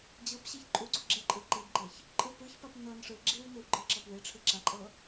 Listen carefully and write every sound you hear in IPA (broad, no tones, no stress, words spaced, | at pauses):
d͡ʑɤp ɕeçǃʼuɡ͡ǀu ɡ͡ǁeǃʼɯ ǃibɡ͡ǃeç | ǃʼɯpɯçpap nɤn ʂɯ ɡ͡ǁiw niwɡ͡ǃɤǁɤp weʈ͡ʂʰɯ ǁaǃʼɤ